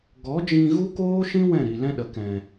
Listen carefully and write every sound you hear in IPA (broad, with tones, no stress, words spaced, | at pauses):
ɡɔ˨˦d͡ʒĩ˧ ɣu˦koː˦ʃĩ˦ wɛ̃˦˨ɾi˨lɛ̃˦ɗə˨ kɛ̃˨